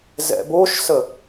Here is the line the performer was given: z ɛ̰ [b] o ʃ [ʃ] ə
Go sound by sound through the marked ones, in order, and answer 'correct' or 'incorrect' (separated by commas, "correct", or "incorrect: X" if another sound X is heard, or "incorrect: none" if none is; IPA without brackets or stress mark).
correct, incorrect: s